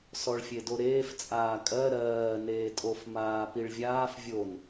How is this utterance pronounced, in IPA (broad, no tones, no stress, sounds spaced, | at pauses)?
s ɔ ɭ fʲ e d o ɾ eː f t͡sʼ aː kʼ ɜ ɾ ɜː n eː tʼ o f m aː p i ɭ vʲ aː f vʲ o n